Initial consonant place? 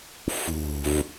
labial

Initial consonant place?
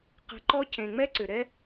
uvular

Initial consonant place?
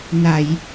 alveolar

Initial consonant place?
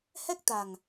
glottal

